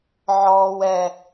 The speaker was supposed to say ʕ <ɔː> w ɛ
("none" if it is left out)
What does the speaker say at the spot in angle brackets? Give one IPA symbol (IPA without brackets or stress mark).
ɔː